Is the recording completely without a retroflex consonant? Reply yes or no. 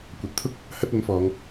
yes